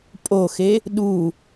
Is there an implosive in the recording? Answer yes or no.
yes